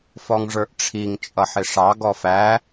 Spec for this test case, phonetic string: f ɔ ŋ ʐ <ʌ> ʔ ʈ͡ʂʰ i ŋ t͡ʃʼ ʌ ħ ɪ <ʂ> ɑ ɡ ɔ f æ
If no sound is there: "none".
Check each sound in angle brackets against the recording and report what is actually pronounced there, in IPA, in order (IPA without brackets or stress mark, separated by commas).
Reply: ə˞, ʂ